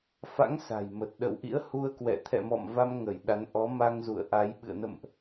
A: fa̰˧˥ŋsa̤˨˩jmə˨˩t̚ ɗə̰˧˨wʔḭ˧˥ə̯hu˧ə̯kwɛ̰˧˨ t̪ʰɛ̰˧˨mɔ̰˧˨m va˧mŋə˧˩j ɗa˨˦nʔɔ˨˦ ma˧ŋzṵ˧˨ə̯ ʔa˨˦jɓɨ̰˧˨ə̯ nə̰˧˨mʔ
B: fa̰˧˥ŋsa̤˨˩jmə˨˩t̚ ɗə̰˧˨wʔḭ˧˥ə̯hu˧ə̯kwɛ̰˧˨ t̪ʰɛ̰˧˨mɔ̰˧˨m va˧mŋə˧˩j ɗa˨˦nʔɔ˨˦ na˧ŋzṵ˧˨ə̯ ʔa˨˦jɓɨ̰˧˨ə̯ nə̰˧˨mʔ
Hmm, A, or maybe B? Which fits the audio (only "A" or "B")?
A